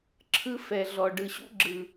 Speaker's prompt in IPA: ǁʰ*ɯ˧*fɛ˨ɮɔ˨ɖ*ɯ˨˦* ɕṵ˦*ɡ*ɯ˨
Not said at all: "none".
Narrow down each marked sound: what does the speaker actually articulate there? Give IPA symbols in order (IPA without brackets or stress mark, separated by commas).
ɯ˦, ɯ˨, ɡ͡ǁ